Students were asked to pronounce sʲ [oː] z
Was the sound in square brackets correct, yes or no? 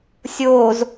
yes